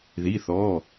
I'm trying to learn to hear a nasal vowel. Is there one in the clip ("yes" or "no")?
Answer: no